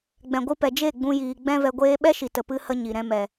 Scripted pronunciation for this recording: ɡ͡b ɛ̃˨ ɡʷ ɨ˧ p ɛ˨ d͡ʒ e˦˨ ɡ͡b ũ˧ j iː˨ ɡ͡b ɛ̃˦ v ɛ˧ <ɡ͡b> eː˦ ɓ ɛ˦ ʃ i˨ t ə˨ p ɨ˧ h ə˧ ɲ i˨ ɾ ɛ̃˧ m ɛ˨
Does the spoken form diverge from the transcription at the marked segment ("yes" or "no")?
yes